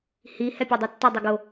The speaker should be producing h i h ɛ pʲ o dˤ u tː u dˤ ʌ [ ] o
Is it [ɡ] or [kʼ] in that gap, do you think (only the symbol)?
ɡ